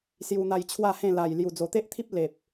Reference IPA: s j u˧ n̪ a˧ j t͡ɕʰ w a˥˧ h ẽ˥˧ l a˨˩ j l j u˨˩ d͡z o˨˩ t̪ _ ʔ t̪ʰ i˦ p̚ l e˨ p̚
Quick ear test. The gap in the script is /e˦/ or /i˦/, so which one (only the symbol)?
e˦